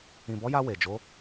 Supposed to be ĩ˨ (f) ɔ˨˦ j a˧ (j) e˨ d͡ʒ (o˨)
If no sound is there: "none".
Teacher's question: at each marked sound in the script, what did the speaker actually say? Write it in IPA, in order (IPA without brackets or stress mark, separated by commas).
b, w, o˨˦